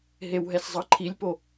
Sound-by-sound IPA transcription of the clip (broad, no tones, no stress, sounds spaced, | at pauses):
ɦ e w ɦ ɛ s zˤ ʌ ǃʰ i lʲ p o